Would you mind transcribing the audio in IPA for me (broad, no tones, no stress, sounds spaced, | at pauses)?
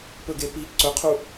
p ɵ ɡ e p i ǀ ɵ qʰ u